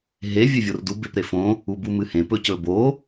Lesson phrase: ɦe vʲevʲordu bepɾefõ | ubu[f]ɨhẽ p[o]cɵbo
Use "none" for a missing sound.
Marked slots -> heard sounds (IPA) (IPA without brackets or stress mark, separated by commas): m, ɵ